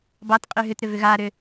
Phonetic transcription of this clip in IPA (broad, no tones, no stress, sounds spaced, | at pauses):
b ɑ t qʼ y ɦ ʏ t ɾ ʏ v ʏ ɣ aː ɾ ʏ